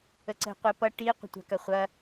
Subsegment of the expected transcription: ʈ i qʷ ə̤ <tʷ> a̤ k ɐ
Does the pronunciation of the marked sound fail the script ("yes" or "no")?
no